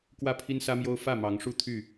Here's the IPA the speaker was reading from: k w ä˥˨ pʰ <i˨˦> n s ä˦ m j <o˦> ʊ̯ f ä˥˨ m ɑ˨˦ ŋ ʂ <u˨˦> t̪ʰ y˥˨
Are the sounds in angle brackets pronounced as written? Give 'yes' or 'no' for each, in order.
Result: no, yes, no

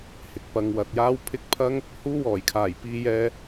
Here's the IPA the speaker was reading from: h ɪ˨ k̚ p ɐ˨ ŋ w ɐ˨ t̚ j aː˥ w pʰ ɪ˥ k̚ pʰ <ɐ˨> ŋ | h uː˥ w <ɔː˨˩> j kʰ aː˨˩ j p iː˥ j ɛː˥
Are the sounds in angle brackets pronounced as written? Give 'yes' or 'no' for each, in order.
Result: no, yes

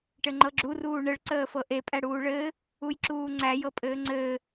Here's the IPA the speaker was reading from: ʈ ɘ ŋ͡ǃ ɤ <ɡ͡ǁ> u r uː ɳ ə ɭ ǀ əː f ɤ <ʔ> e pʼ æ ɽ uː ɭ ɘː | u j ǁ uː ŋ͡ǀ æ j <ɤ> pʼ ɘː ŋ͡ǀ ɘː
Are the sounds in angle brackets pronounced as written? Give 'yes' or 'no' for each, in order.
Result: yes, yes, yes

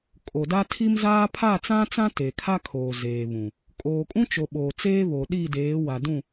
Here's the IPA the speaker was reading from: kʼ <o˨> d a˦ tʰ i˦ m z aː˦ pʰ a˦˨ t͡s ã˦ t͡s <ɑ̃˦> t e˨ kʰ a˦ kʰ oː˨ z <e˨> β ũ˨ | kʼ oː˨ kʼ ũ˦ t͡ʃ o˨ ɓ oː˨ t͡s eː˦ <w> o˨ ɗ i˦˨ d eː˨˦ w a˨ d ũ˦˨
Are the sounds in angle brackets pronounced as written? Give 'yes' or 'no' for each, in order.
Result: yes, no, no, no

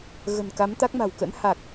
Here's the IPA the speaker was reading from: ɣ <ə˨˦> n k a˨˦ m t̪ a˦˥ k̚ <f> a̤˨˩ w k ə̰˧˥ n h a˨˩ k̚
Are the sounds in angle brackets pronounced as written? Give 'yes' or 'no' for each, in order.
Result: no, no

